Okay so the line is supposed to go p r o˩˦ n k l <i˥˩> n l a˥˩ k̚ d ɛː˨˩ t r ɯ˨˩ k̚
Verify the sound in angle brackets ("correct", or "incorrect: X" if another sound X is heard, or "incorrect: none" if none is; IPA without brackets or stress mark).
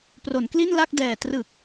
correct